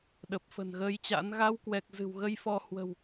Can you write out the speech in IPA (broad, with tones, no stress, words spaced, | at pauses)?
ɗə˨˩p̚fə̤˨˩nɣəː˧jt͡ɕa̰˧˥n ɣa˧wkwɛ˨˩k̚ zɨ̤˨˩wɣə˧jfɔ˧ hwə̤˨˩w